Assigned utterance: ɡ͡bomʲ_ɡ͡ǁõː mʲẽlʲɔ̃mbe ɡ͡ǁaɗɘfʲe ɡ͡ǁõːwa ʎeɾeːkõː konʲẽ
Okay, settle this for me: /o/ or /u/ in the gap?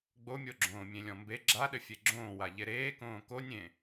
o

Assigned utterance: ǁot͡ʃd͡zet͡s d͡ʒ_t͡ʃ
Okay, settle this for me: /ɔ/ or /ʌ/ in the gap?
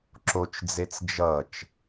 ʌ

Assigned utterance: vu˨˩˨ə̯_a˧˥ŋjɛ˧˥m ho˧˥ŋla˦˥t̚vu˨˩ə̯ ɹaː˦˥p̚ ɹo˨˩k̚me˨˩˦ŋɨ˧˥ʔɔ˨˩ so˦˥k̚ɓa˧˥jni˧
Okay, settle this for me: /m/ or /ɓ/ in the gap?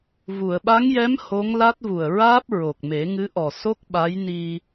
ɓ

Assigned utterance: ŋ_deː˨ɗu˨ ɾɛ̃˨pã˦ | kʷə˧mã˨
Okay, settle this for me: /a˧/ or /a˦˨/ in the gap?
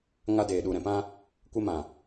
a˧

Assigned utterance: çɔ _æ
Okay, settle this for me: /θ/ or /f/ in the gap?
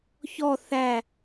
θ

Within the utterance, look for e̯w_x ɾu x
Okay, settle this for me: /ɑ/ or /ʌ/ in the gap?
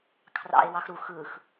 ɑ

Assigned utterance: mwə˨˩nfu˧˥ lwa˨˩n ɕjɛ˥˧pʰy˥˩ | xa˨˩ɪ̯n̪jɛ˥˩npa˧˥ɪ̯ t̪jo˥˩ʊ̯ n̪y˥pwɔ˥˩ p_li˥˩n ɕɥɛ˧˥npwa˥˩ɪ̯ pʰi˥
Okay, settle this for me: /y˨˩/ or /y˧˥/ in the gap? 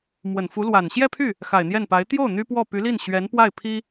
y˧˥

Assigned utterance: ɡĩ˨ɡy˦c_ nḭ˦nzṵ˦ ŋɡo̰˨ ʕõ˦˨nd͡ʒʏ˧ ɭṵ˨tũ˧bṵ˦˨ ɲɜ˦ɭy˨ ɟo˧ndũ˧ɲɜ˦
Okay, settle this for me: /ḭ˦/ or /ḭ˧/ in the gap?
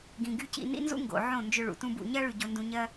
ḭ˧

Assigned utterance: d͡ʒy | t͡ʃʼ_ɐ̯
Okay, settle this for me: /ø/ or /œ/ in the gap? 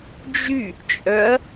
œ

